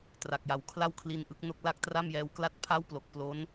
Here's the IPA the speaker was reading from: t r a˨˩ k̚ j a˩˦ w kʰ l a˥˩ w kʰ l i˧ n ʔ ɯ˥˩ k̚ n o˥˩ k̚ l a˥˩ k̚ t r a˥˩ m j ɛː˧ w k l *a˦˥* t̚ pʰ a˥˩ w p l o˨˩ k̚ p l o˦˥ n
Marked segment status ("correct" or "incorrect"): incorrect